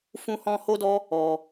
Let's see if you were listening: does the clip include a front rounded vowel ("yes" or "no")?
no